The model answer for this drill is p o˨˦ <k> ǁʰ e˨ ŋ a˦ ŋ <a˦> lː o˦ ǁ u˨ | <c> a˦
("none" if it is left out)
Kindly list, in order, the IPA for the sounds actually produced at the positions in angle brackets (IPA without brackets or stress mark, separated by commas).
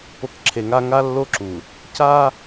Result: k, a˦, c